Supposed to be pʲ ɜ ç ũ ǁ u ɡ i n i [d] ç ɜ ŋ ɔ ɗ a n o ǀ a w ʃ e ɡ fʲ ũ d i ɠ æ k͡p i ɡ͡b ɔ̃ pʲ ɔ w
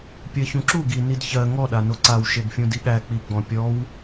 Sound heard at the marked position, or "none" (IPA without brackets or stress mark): d